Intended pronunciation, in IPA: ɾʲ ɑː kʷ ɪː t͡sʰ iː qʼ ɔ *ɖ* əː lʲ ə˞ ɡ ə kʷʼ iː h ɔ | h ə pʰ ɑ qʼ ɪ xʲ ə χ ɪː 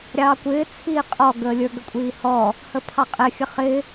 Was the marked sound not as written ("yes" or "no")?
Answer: yes